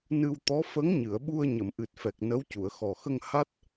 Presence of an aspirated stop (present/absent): absent